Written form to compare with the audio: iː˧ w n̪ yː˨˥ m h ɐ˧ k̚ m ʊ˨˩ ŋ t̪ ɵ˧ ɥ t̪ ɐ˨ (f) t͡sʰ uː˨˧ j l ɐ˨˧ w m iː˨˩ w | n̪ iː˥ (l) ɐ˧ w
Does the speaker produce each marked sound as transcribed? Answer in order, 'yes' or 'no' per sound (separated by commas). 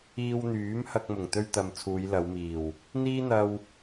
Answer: no, no